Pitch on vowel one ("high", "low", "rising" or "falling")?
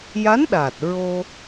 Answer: rising